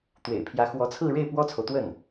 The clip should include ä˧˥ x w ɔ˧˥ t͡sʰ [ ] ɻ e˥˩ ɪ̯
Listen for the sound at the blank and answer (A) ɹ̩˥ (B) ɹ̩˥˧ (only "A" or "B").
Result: B